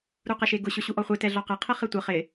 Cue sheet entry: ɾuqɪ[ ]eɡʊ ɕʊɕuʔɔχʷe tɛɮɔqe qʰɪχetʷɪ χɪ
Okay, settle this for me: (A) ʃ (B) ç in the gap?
A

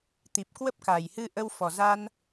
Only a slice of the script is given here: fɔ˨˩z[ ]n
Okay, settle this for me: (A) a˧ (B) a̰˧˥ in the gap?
A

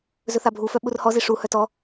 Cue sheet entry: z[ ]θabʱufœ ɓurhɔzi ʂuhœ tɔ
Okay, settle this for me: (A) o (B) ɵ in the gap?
B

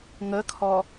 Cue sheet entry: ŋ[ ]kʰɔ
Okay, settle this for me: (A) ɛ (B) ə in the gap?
B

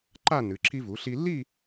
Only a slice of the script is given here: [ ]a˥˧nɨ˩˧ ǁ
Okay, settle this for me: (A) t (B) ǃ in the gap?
B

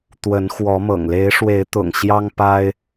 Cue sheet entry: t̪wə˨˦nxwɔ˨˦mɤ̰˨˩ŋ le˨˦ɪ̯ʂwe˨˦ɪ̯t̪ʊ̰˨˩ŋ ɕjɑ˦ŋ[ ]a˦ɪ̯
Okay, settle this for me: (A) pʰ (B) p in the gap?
B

